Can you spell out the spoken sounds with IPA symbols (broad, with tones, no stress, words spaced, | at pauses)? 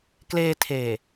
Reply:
kleː˧tʰeː˨˩